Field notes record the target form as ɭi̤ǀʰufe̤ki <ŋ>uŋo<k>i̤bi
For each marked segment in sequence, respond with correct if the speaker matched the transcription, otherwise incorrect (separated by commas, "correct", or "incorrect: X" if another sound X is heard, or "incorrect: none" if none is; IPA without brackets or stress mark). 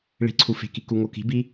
incorrect: k, correct